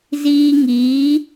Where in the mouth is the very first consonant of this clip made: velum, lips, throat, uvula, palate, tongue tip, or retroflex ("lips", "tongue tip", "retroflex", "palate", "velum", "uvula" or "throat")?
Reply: tongue tip